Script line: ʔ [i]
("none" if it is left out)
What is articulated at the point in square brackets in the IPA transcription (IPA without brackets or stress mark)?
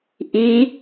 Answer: i